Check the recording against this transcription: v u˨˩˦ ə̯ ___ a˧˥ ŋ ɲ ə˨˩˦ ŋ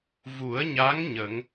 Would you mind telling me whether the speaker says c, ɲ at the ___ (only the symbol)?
ɲ